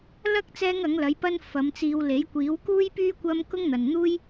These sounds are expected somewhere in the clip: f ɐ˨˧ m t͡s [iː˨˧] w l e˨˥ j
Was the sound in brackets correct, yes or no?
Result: no